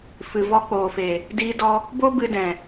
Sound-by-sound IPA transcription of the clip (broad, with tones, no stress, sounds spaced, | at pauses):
f ɨ˨ v ɔ˧ k͡p oː˨ f e˨ | d iː˧ d ɔ˧ | b o˦ b ɨ˧ d ɛ̃˨